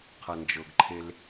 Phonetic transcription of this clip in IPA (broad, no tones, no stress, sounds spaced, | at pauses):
qʰ ɐ n d͡ʒ ɤ ɡ ǃʰ e l